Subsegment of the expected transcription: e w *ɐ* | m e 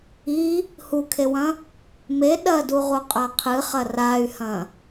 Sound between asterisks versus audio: incorrect: ɐ̃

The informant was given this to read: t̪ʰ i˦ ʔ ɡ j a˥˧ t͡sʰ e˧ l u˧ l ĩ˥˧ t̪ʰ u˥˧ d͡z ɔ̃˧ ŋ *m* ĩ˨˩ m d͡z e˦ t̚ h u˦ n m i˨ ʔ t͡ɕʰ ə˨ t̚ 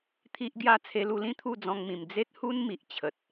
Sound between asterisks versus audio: correct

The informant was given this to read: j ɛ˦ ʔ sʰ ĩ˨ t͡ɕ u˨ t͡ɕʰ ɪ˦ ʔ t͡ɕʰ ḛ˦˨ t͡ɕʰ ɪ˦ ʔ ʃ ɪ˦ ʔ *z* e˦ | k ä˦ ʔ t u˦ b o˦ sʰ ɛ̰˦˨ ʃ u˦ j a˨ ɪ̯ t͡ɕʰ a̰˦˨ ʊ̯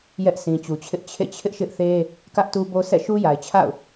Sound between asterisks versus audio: incorrect: θ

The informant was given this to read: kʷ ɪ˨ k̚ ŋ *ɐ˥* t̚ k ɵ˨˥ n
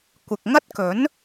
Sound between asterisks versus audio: correct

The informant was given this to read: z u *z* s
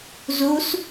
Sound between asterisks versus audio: incorrect: none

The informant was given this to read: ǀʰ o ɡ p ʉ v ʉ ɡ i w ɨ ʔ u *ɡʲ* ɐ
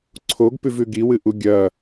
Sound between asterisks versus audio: correct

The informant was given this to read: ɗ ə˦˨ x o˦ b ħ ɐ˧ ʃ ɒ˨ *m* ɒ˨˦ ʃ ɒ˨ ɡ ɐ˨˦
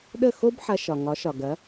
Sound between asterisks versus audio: incorrect: ŋ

